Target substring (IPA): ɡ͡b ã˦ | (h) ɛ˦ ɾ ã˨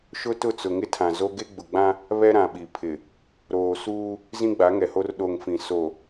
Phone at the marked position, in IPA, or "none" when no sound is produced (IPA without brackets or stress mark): β